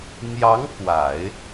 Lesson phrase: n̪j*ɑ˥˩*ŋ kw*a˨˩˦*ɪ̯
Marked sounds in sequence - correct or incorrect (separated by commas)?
incorrect, correct